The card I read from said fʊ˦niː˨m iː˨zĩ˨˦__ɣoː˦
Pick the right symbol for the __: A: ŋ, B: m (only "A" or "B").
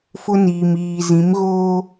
B